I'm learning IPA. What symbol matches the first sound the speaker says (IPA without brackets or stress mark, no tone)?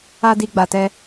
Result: a